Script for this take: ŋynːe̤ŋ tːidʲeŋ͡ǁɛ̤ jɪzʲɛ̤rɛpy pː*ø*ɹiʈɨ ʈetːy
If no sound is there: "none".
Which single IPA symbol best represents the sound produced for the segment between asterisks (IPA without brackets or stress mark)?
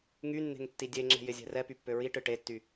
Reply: ø